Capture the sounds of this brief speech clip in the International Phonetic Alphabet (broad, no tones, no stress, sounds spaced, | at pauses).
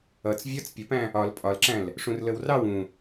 ʌ t͡s vʲ ɒ t͡s pʲ ə p æ̃ | ɒ l pʼ ɒ l ǁ æ̃ l | ʂ ũ r l ə w r ɑ w ũ